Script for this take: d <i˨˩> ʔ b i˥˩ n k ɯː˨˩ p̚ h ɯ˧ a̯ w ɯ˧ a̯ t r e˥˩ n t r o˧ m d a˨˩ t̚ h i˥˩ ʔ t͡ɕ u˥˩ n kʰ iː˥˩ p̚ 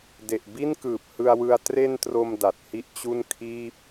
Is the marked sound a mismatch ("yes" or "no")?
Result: yes